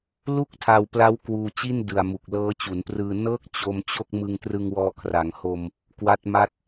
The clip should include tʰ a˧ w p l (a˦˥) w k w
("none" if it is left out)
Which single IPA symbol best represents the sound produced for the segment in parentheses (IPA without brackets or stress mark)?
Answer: a˦˥